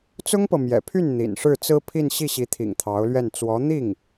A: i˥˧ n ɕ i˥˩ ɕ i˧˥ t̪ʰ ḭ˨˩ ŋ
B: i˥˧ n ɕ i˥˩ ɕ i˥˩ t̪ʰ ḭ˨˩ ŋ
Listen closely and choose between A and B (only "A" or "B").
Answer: A